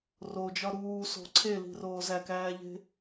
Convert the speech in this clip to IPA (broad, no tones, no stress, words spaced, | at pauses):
rod͡ʒɒ ɾuːso̤ ǀʰeli̤roː zækæːʎe̤